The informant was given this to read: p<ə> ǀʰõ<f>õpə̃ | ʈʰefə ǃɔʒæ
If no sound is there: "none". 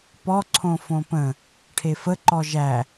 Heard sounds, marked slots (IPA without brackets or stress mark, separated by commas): ɔ, f